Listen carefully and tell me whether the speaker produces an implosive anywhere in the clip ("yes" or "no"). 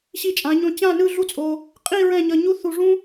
no